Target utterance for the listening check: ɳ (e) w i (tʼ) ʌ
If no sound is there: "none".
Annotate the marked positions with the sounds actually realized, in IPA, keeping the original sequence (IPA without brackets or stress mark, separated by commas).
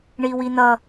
i, n̪